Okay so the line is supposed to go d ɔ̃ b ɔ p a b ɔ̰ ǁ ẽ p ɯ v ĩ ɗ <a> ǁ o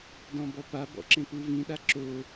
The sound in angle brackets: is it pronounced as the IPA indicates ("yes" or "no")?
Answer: yes